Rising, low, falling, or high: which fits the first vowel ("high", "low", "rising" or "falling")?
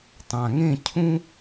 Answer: low